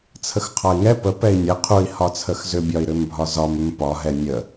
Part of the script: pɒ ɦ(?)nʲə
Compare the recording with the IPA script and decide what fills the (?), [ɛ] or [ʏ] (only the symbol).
ɛ